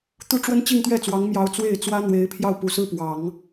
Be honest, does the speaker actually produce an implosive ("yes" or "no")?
no